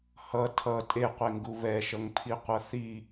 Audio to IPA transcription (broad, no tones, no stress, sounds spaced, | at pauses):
h ʌ tʰ ʌ tʼ e qʷ e ŋ ɡ u β ɛ ʃ ʌ ŋ pʰ i qʷ ʌ θ i